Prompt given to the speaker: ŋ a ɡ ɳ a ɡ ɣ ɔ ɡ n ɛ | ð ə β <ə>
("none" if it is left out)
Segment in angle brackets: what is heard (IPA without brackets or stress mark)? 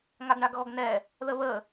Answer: ə